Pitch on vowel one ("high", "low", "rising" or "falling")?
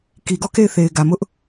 low